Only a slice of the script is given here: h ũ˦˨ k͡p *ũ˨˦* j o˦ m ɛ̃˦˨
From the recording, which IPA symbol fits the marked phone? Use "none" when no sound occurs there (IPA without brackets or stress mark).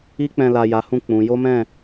ũ˨˦